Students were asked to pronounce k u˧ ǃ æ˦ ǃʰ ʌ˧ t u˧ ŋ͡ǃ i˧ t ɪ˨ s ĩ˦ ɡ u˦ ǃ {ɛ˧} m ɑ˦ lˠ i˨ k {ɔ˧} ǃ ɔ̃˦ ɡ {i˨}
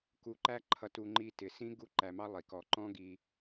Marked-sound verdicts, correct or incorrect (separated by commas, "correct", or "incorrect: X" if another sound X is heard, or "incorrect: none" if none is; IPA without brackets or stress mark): incorrect: æ˧, incorrect: ɔ˨, incorrect: i˧